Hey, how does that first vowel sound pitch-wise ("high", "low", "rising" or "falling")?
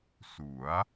rising